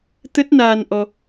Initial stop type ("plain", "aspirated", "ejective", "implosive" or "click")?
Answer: plain